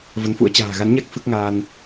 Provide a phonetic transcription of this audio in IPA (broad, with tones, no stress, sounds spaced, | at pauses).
v ə˨˦ n f ṵ˧˥ ə̯ t͡ɕ a̤ː˨˩ ɣ a˨˦ n ɲ a˦˥ k̚ f ɨ˦˥ k̚ ŋ aː˧ n